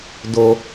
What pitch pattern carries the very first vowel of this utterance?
low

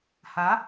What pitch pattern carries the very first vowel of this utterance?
rising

